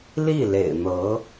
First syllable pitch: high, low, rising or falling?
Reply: falling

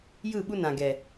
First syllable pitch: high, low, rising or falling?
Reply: falling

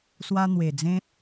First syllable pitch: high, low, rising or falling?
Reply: high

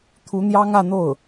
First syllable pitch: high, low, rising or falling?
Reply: rising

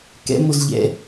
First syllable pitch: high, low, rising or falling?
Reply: rising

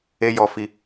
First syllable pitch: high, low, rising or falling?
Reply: high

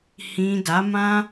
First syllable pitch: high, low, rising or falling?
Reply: low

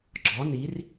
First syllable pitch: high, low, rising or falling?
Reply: rising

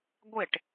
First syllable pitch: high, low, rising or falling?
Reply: falling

